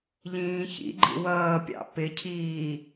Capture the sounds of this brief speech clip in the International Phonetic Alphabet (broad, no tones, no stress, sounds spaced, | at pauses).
ʎ ĩː ç ḭ ɡ͡ǃ ḭ w ʌː pʲ ɑ̰ p ɪ cʰ iː